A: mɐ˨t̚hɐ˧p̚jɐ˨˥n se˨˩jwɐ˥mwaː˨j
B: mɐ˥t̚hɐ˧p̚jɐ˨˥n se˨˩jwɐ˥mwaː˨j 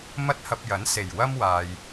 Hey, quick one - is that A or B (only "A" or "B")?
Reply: B